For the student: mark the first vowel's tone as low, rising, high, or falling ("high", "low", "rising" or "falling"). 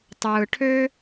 low